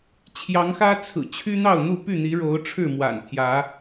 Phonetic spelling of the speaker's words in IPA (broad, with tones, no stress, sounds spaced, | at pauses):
t͡ɕʰ j ɑ˨˦ ŋ x ä˦ t͡sʰ ɹ̩˨˩ t͡ɕʰ y˦ n̪ ɑ˥˨ ʊ̯ n̪ u˥˨ p y˥˨ n̪ i˨˦ ɻ o˨˦ ʊ̯ ʈ͡ʂʰ ɻ̩˥˨ m w a̰˨˩ n t̪ʰ j ä˨˦